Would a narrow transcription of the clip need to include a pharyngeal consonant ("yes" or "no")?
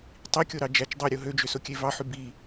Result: yes